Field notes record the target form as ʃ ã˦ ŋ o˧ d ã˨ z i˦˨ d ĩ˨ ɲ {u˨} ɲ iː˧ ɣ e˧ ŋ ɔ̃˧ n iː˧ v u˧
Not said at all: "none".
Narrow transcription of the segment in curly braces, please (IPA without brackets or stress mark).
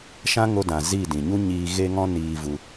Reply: u˦